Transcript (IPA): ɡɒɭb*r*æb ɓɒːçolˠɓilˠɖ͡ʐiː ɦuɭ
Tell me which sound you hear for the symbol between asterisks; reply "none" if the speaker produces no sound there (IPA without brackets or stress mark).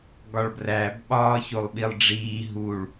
r